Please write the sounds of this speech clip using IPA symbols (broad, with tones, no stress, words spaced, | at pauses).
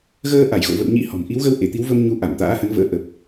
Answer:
ɣəː˧ ʔa˧˩jɣo̰˧˨ və̰˧˨wɲḭ˧˥ hɔ̤˨˩m ʔi˨˦wɣə˧w ʔe˧˩t̪i˨˦wvə˧m ɲu˧ʔa˧˩mt̪a̰ː˧˥hə˨˦n və̰ː˧˥ʔə˨˩p̚